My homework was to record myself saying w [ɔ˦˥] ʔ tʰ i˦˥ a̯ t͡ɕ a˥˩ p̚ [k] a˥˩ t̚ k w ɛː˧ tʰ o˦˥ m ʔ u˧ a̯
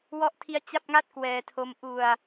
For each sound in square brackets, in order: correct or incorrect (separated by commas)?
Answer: correct, incorrect